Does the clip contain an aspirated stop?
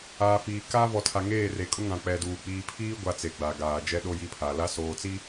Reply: yes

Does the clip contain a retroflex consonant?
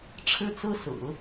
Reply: yes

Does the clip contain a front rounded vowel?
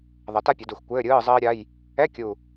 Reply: no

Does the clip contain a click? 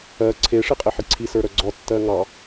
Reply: yes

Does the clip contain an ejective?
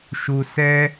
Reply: no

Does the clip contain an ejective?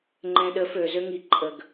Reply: yes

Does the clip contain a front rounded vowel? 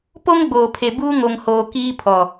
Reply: no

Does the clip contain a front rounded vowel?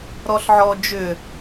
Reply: yes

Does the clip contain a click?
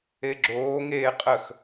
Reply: yes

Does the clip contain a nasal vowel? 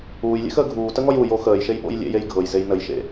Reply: no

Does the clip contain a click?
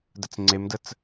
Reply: yes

